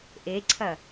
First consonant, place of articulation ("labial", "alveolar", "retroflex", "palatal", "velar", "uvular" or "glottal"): glottal